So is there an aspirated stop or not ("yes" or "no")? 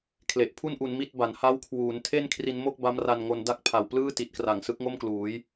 yes